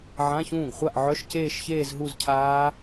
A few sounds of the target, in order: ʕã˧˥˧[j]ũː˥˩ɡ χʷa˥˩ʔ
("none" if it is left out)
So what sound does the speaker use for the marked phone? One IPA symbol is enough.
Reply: ç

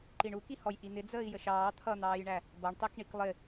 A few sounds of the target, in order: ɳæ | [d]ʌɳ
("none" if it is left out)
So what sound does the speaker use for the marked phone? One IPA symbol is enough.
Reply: b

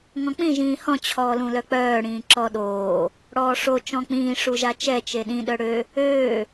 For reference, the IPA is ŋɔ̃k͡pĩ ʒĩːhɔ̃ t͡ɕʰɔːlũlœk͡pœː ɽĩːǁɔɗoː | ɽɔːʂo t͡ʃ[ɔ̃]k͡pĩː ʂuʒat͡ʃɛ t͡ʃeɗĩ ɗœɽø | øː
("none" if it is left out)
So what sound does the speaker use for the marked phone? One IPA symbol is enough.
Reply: ɔ̃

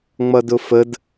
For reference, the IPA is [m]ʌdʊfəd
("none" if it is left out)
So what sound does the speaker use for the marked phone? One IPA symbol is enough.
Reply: ŋ͡m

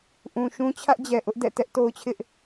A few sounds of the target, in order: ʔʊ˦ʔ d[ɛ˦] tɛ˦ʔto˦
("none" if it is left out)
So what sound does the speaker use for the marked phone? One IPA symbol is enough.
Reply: ɛ̰˦˨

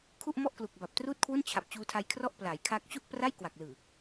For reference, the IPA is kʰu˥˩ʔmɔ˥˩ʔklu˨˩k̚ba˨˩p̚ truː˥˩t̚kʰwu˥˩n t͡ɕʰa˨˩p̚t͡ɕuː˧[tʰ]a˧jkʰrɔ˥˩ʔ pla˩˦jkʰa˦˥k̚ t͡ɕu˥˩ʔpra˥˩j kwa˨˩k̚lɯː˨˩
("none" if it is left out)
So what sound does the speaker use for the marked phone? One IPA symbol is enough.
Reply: tʰ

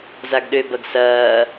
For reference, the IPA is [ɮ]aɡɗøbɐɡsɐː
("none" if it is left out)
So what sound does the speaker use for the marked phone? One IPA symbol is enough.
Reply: z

